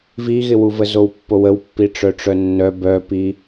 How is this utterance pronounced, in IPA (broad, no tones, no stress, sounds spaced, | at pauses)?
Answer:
v i ɣ ɪ w u v ə z o w pː o w ə w pː i ʈ͡ʂ œ ʈ͡ʂ œ nː œ b œ p i